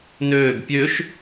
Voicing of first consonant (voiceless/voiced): voiced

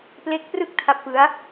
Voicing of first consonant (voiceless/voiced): voiceless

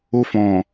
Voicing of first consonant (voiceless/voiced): voiceless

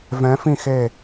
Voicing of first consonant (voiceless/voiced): voiced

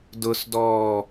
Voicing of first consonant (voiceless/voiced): voiced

